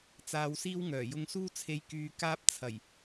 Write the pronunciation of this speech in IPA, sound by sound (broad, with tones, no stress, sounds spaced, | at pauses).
t͡s aː˧ w s iː˥ w ŋ œː˨˩ j ʊ˧ ŋ s uː˥ t͡sʰ e˧ j k yː˧ k aː˥ p̚ t͡sʰ ɐ˨˩ j